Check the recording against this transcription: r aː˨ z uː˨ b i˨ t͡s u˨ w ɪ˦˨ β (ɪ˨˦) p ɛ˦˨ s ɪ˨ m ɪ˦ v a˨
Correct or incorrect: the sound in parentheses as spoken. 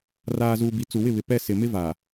incorrect: ɪ˨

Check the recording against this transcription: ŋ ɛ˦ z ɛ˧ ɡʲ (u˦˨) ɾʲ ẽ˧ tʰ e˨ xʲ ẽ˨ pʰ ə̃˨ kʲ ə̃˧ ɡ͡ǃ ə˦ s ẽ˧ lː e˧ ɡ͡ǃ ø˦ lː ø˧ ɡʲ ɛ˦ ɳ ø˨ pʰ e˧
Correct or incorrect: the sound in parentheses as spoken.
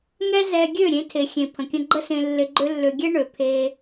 incorrect: ø˦˨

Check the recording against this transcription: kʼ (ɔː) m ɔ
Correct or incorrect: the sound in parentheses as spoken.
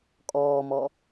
correct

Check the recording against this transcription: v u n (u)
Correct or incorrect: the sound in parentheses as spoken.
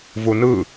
incorrect: ɯ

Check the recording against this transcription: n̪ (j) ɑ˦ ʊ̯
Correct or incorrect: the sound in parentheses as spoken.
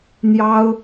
correct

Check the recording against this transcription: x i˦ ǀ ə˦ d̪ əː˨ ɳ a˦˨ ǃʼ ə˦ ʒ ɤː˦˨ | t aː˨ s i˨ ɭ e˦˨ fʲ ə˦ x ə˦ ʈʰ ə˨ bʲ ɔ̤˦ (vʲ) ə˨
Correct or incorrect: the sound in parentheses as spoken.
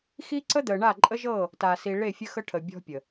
incorrect: pʲ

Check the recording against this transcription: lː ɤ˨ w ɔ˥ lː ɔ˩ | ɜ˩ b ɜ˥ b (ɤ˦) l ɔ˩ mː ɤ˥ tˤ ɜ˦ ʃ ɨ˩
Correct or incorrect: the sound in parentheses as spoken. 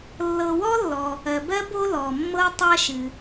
incorrect: o˦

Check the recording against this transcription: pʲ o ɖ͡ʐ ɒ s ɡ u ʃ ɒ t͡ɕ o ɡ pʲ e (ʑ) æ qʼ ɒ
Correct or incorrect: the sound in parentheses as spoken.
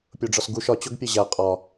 correct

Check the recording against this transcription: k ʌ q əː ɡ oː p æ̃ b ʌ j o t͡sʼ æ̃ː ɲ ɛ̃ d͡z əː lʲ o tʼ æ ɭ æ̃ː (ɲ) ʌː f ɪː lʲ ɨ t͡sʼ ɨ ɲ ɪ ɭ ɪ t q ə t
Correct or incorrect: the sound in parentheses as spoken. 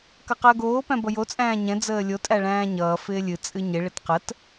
correct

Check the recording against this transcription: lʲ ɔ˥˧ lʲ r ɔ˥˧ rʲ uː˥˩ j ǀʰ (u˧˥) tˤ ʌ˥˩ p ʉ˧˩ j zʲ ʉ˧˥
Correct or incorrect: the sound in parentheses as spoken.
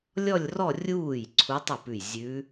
correct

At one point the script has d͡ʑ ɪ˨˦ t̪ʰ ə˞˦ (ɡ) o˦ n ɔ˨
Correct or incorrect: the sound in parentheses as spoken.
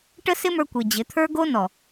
correct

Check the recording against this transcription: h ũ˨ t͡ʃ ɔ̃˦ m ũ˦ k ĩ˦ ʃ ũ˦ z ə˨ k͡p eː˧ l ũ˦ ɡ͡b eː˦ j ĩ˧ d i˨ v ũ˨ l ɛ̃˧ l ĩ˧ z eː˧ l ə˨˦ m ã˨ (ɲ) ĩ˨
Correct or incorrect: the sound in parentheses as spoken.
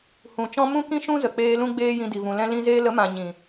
correct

